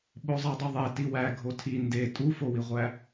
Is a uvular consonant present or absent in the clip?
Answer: present